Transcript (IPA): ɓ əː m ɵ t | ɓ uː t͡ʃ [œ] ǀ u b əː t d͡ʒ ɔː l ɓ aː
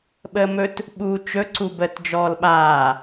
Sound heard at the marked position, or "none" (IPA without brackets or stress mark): ɵ